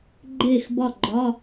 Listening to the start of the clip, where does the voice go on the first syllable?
falling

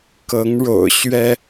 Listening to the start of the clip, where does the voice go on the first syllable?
rising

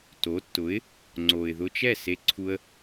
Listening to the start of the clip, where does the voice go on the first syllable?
rising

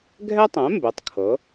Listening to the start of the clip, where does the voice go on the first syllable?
high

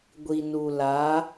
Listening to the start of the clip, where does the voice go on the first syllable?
low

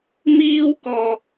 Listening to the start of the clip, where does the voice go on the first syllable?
high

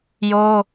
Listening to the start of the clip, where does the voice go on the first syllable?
high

